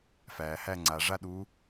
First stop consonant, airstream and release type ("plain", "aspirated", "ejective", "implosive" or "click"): click